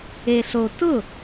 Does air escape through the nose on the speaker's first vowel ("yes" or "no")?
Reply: no